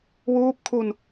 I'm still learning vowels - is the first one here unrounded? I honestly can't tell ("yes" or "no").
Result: no